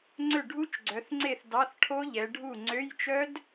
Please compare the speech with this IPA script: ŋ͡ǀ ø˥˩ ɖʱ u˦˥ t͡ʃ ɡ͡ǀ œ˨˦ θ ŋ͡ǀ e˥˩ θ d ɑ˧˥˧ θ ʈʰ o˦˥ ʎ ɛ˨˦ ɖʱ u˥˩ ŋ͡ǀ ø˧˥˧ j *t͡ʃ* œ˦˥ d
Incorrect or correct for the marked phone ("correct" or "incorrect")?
correct